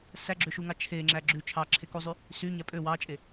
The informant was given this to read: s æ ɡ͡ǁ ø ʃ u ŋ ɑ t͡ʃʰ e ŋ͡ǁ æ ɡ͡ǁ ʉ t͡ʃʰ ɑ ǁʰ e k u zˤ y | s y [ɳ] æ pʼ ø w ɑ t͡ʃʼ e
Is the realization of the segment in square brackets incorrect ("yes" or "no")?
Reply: yes